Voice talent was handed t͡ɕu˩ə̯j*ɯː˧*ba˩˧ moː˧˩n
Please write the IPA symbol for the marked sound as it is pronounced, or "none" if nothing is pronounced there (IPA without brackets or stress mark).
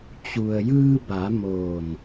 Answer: ɯː˧